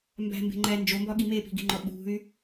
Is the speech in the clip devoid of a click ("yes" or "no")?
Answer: no